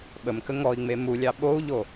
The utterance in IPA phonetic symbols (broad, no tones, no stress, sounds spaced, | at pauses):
ɓ ə m k ə ŋ ɔ i̯ ŋ͡m e m u lʲ ɑ ɓ o u̯ ʎ o